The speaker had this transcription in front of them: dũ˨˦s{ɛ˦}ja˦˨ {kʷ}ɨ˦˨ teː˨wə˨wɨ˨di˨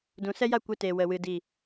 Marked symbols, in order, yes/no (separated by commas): yes, yes